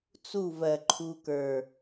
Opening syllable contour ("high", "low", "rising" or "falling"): falling